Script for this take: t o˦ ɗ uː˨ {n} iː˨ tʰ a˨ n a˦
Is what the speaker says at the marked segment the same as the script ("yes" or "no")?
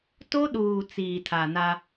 no